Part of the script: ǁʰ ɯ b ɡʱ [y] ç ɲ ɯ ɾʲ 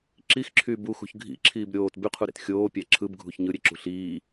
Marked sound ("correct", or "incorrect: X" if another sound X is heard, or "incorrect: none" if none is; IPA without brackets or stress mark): incorrect: u